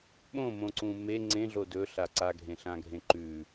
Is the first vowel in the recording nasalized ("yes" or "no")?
yes